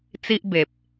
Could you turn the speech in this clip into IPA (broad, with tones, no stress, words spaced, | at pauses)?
t͡si˦ʔbe˨p̚